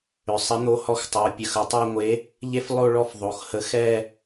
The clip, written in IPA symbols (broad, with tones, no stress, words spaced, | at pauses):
ʏ˩˧sˤə˨˥ n̪o˨˥hɔ˨˥xtˤo˩˧pʲə˩˧x ə˩˧tˤɛ˦˨ŋʷe˨˥ | ʎe˦flˠo˦˨ ɭɔ˦fðˤo˩˧xhə˨˥ xɛ˦˨